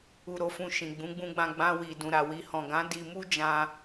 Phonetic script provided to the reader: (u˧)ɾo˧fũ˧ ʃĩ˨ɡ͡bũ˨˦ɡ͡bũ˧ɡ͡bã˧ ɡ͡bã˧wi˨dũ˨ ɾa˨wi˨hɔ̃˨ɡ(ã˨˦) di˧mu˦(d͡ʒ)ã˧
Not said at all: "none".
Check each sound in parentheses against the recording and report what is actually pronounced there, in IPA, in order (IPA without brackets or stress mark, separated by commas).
u˧, ã˨˦, d͡ʒ